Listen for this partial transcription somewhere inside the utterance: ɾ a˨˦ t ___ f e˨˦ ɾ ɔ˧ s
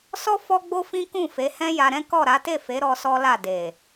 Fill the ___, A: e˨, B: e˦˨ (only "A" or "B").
B